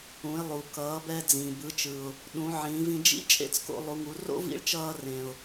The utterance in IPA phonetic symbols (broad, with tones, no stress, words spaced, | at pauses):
ũ˩˧ɪ̯lˠu˩ kʌː˩˧bɛ˧ d͡zĩ˩bɯ˩˧t͡ʃɯ˩ʊ̯ | ɗũ˩˧ ʕĩː˩˧vĩ˧ d͡ʒḭ˥ t͡ʃʼḛ˥t͡sko̰˧lˠu˩˧ŋu˩˧ ro̰˥ vḭ˧˥ɭt͡ʃʌː˧rẽ˩ʊ̯